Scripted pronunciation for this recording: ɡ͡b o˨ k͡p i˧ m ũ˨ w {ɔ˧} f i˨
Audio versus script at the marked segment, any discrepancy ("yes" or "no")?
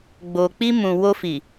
yes